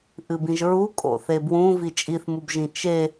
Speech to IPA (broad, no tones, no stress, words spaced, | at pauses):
ʔɨbĩʒɹu kʼo̰θebwũ vit͡ʃʼiθmubʒĩ t͡ʃe